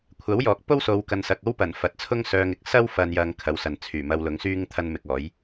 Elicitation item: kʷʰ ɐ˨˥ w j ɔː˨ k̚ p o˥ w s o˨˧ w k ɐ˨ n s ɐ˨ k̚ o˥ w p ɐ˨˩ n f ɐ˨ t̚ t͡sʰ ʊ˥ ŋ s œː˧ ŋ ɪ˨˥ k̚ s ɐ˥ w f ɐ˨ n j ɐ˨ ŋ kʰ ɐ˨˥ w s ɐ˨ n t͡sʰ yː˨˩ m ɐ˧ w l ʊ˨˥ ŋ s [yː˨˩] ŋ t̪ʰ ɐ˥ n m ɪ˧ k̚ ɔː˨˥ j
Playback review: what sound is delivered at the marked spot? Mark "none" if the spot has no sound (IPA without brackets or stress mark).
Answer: yː˥